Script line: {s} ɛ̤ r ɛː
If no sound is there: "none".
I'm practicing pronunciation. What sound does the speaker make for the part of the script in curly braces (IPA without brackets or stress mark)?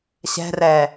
ɕ